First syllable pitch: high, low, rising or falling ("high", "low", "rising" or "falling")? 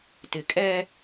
low